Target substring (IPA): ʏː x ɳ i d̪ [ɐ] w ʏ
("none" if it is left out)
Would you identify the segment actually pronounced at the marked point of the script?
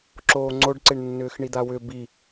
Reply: a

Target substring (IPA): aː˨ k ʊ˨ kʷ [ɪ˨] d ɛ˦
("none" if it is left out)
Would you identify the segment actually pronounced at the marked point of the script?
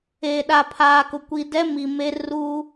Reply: i˨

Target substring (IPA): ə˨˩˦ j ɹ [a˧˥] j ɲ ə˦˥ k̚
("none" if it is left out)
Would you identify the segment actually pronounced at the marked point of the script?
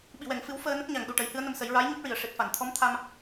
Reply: a˧˥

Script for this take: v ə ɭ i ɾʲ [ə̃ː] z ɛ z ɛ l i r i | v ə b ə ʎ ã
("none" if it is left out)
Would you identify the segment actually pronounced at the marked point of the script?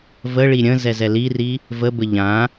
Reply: ə̃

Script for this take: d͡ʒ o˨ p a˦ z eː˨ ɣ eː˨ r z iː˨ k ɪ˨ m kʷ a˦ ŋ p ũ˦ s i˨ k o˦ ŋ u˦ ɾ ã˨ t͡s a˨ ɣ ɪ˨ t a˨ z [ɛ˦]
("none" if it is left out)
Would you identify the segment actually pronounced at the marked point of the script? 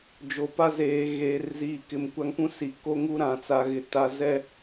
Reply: ɛ˦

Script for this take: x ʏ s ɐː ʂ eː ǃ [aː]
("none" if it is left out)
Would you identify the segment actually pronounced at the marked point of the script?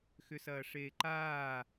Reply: aː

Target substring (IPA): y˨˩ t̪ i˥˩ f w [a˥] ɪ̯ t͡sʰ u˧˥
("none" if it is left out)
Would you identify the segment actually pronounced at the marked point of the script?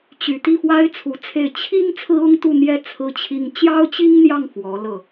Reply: a˥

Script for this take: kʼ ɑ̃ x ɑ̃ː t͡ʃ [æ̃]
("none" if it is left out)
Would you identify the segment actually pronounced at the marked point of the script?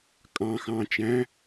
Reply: æ̃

